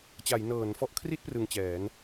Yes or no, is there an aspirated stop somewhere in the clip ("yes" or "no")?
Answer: yes